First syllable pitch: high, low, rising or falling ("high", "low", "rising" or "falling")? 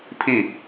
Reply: falling